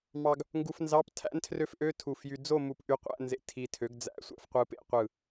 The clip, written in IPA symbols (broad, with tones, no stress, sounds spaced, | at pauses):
m ɑ˧ ɡ | ŋ ɡ u˧ f n z ɑ˧˥˧ p tʰ æ̰˦˥ n tʰ r ø˦˥ f ʔ ø˧˥˧ tʰ u˧˩ f j y˧ d͡z o˥˧ m u˧˩ p ʔ y˧ qʷ æ̰˧˥˧ n z ḛ˧ tʰ i˧ tʰ ø˨˥ ɡ d͡z æ̰˧˥˧ sʷ æ̰˧ f qʷ ɯ˧ p ḛ˧˥˧ qʷ ɯ˧˩